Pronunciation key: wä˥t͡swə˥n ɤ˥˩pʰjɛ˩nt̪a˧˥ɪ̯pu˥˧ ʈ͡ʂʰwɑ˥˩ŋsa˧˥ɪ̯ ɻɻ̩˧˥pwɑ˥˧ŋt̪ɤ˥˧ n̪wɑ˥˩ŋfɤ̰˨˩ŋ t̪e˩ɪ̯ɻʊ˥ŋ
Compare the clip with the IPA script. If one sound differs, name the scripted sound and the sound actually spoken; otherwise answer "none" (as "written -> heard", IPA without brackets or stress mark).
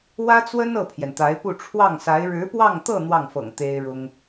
e˩ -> e˥